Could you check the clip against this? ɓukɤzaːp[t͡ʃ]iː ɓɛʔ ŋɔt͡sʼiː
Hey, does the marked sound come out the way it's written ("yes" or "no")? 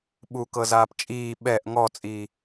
no